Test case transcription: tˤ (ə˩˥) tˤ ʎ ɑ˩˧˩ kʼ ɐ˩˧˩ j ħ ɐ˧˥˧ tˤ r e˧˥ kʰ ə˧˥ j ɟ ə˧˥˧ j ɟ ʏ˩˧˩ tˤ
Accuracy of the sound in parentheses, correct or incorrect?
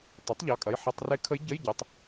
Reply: correct